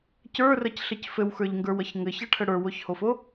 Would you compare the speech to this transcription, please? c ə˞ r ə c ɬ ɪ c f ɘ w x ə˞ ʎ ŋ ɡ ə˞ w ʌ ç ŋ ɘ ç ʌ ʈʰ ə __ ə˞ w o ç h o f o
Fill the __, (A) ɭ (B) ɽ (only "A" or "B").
B